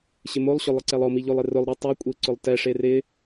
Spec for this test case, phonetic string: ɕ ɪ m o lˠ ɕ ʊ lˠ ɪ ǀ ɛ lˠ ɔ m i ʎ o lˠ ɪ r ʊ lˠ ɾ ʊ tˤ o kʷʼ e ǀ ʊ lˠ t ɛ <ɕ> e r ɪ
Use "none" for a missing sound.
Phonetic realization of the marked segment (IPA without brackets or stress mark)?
ʂ